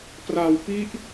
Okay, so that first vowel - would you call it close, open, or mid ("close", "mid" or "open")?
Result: open